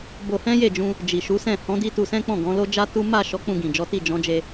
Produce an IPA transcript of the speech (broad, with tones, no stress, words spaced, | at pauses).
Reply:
bo˧hɛ̃˦je˦˨d͡ʒũ˧ | d͡ʒi˨ʃu˨˦sɛ̃˦˨ hɔ̃˨˦di˧ tu˧sɛ̃˦k͡pɔ̃˦˨ ɡɔ̃˨˦lo˦d͡ʒa˦tu˦ ma˦˨ ʃɔ˨˦ k͡pũ˧ɡĩ˨ d͡ʒɔ˨˦ti˦˨ d͡ʒɔ̃˨˦d͡ʒe˧